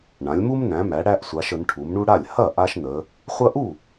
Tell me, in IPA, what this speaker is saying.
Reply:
ɳ ã˩˧ lʲ m u˦ m n æ̃˩˧ m æ˩˧ ɽ æ˦ ʔ sʷ a˩˧ ʃ ə˩˧ n ʈʰ u˩˧ m ɳ u˦ ɽ a˥˩ lʲ h ɐ˥˩ ʔ a˦ ʃ n ə˩˧ | χʷ ɐ˦ ʔ u˥˩

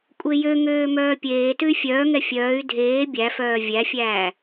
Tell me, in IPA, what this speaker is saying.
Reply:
kʷʼ e j ø ŋ øː m œː pʲ eː t ʉ y̯ fʲ œː ŋ ɛ fʲ œː y̯ dʱ eː bʲ æ f œː vʲ æ fʲ æː

